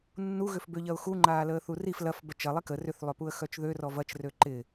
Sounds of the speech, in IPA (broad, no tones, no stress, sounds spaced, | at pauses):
nː u ɣ ʏ f b ø ʎ ɐ ʊ̯ x u ŋ͡ǃ aː l əː θ u r i f l ɐ f b œ t͡ʃ ɐ lˠ i k ə r ʏ θ lˠ ʏ p u ə̯ x œ t͡ʃ ð ø r ɔ v ɐ t͡ʃ r ø ǃ ɪ